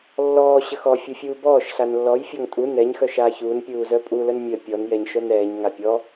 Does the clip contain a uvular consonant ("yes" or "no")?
no